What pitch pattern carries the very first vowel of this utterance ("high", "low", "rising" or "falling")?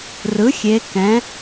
rising